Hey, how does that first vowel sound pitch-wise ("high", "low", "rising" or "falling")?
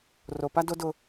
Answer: low